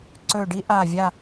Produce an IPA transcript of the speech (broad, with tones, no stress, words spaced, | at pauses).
ǀɵ˧˩ɖi˥ ʔa˧˩vʲa˥˨